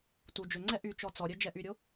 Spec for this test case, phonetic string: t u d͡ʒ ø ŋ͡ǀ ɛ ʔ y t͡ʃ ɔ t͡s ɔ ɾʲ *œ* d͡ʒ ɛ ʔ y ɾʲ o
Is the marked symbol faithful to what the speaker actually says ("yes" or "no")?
yes